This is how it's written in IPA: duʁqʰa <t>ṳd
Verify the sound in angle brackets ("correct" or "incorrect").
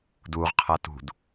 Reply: correct